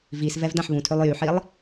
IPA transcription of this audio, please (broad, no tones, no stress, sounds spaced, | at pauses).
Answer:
v i s v ɛ v d ã ħ β ũ tʰ ø lˠ j y ħ i lˠ